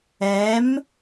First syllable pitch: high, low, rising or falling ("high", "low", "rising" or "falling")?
rising